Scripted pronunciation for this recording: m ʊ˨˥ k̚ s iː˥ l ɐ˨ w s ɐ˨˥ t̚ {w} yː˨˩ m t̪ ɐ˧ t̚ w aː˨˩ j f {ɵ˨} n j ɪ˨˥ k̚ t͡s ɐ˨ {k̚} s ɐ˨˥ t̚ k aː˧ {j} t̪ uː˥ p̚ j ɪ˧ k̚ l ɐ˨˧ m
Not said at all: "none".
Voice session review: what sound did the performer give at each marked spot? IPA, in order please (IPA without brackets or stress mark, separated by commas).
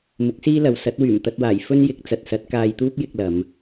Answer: w, ɵ˥, t̚, j